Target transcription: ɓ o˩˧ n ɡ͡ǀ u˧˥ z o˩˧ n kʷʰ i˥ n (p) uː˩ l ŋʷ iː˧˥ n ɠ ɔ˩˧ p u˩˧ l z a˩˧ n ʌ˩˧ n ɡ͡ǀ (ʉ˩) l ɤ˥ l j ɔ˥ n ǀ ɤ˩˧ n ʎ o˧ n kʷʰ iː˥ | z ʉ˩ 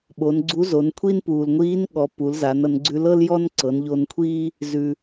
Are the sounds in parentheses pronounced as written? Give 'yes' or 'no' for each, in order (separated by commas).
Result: yes, no